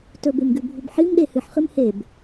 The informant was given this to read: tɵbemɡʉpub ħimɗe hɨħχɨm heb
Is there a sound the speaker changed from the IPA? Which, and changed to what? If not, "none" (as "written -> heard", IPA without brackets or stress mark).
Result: p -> bʱ